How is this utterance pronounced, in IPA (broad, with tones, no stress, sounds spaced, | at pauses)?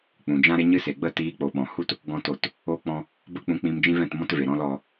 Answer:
k͡p ũ˨ d͡ʒ ã˦ ɾ e˦ ɲ ɨ˦ s e˨ ɡ͡b ə˦˨ t iː˧ k͡p o˨ ɓ ɔ̃˨ h u˦ t | ɡ ɔ̃˦ t o˦˨ t | o˦ k͡p ɔ̃˦ | b ə˦ k͡p ũ˧ k͡p ĩ˧ m d͡ʒ ĩ˦ v ɛ̃˦˨ t m ɔ̃˦ t v e˨ ɾ ɔ̃˦ l ɔ˧